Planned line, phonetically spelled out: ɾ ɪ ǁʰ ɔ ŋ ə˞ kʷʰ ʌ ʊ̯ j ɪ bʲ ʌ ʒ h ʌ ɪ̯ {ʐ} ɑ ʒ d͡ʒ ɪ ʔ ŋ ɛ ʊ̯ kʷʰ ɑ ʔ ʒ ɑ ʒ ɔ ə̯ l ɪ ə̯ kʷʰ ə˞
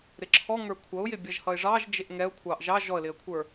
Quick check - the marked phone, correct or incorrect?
correct